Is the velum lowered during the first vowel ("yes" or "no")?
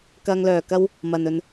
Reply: no